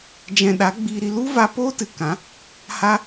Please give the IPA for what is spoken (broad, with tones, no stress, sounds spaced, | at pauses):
d͡ʒ ɛ̃˨ ɗ a˨˦ ɡ͡b iː˧ ɾ i˧ l u˦ v a˧ p o˦ t ɨ˨ k ã˨˦ | h a˧